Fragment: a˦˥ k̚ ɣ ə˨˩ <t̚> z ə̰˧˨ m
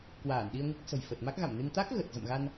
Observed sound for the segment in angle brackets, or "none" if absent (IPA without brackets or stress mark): t̚